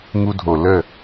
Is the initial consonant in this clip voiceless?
no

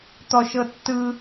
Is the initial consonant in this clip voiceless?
yes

